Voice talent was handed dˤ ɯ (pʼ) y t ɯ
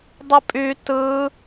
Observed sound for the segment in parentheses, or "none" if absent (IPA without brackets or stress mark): pʼ